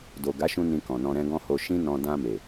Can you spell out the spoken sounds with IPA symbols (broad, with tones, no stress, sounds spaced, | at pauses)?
d o˨ ɡ a˨˦ ʃ ũ˧ n ĩ˧ k ɔ̃˨ n ɔ̃˧ ɾ ɛ̃˦ ɡ ɔ̃˦ h o˧ ʃ ĩ˦ n ɔ̃˧ d ã˧ m e˨